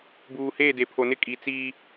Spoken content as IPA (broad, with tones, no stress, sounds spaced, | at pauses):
b uː˨ h eː˦˨ d e˨ pʰ o˨ n ɪ˦˨ kʼ i˨ t͡s iː˦